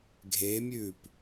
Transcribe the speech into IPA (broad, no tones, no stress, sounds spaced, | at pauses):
ɡʱ e mʲ ʉː p